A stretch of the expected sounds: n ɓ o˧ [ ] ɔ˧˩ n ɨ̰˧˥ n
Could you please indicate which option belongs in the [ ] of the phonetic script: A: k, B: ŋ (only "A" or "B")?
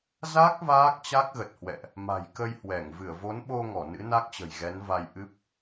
B